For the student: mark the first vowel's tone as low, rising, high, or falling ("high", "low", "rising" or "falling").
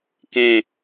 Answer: falling